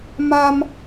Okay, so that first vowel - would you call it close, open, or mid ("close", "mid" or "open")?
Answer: open